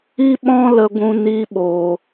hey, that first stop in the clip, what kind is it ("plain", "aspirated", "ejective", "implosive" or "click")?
implosive